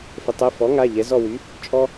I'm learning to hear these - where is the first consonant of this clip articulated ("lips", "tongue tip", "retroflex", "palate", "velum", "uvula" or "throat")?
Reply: lips